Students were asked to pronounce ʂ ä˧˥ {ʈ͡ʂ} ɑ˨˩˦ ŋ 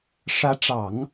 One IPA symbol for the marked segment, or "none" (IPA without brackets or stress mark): ʈ͡ʂ